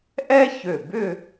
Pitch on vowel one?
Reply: high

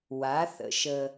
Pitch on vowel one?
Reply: rising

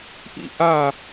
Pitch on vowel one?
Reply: high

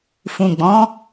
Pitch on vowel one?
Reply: low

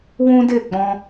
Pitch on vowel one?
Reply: high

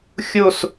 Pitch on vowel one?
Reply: falling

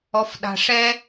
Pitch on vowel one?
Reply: low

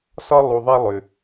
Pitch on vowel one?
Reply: high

